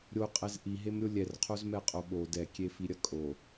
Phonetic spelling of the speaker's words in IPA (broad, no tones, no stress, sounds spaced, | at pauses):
ɾʲ o qʼ ɛ z ʔ i ɦ e m ɾʲ o lʲ ɛ r qʰ o z m ɛ qʼ o ɓ o d ɛ kʲ e f i ɾʲ ɐ kʼ o